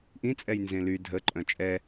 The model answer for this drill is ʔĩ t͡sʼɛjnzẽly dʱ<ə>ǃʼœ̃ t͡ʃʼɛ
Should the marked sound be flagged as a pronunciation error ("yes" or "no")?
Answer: no